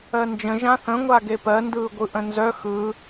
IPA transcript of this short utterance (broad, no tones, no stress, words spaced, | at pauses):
ɜnd͡ʒə̃ ʒãθə̃ ŋʷaɡepɜ ndɯːɡʷɯʔə̃nzœ xɯ